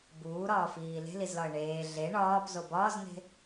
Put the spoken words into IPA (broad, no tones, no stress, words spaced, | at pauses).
buːɾɒːfiː le̤lizlɒə̯ ɳeː ɮe ɳɒːpzo bɒːzn̪e̤